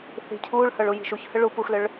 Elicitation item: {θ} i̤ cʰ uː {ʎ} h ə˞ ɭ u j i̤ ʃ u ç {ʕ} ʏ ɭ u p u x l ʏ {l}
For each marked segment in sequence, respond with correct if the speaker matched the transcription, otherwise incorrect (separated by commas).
correct, incorrect, incorrect, incorrect